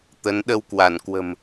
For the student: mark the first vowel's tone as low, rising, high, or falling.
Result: rising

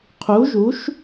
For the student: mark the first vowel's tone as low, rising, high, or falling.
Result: rising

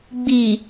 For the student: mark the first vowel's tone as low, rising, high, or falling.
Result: low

